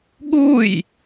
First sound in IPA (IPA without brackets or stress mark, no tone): ɠ